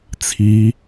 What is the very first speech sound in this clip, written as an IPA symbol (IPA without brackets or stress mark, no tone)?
t͡sʰ